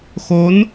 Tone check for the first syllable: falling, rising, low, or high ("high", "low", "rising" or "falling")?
rising